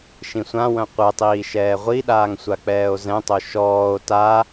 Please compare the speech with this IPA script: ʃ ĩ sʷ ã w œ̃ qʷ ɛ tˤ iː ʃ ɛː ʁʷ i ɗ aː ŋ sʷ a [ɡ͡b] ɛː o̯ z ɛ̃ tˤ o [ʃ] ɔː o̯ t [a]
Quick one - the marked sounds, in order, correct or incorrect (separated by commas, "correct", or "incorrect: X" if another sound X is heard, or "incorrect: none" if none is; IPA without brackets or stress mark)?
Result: incorrect: k͡p, correct, correct